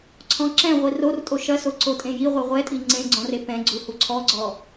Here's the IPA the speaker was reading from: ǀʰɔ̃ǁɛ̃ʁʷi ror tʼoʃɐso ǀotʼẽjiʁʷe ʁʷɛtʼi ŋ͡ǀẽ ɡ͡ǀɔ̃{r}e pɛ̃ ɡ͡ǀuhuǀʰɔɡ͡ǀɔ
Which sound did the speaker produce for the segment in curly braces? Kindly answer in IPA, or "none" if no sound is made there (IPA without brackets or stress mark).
r